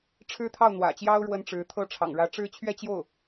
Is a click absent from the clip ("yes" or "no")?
yes